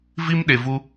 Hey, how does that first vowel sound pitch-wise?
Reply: high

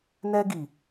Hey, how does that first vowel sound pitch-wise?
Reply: high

